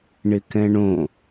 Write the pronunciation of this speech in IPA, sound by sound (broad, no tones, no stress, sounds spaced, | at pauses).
ɳ ɪ k ɛ̃ ɳ õ